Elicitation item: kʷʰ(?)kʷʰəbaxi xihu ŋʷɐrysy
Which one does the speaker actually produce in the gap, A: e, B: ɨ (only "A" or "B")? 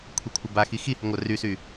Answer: A